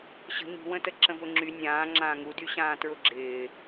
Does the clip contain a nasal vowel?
yes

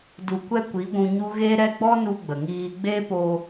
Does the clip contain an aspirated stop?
no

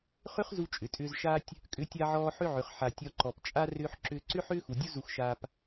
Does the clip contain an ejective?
yes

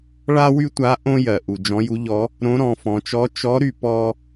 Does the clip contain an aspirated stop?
no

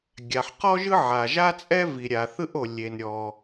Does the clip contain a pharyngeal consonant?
yes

